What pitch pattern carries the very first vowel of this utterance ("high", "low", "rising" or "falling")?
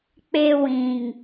high